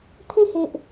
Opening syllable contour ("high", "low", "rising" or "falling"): falling